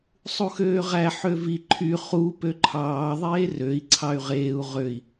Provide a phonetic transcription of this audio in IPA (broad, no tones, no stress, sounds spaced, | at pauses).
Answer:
sˤ u x øː ʁ æ ħ ø v i ǃʰ y χ u p ø ǃʰ ɑː ðˤ eː r ø i̯ ǀʰ ɑ y̯ ʁ eː u̯ ʁ ø i̯